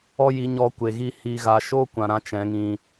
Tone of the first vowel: high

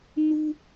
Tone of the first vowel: high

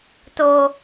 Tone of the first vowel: high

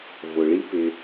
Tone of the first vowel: low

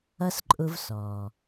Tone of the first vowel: high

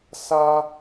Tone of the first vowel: high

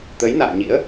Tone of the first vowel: rising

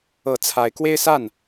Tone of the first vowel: rising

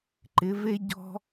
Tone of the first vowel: rising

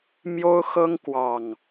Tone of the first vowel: high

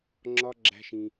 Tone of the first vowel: high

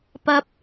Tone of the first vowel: high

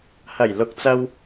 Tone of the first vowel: low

